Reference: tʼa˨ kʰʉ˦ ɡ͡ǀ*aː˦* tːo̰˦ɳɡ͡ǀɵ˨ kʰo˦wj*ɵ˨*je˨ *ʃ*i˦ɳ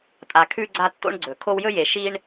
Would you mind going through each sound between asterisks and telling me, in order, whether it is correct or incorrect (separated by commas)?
incorrect, incorrect, correct